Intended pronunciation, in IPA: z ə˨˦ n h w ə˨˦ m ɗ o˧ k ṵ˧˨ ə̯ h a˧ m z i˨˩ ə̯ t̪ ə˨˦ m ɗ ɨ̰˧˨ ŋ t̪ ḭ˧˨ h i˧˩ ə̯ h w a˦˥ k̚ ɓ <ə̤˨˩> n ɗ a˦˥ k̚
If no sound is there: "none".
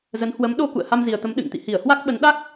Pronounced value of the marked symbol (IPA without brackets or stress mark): ə˨˦